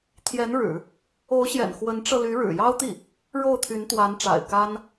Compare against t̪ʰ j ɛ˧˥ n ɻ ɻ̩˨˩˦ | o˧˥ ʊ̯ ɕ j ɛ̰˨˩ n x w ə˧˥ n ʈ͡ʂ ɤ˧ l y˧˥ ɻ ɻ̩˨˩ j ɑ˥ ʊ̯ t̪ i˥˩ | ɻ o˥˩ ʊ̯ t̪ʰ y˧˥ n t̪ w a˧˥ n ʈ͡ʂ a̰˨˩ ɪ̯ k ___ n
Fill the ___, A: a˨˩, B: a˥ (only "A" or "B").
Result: B